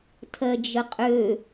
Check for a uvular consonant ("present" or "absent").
present